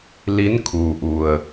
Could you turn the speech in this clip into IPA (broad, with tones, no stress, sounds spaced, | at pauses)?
l i˧˥ n kʰ uː˩ ʔ u˩ ə̯